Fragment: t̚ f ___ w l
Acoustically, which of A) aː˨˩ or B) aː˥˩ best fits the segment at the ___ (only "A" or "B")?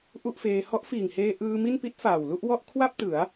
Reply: A